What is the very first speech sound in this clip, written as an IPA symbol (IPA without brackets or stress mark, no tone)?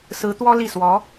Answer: s